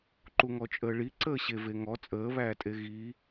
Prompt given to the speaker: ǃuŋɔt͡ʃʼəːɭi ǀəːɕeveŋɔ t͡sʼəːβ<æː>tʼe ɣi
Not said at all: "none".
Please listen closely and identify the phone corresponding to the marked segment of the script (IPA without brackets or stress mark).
æː